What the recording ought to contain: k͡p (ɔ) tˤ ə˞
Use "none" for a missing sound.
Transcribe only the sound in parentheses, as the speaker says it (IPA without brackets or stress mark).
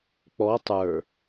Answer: ɔ